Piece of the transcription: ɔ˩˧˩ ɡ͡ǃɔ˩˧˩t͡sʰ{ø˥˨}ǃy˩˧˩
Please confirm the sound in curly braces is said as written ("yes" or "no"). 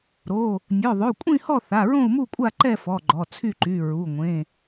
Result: no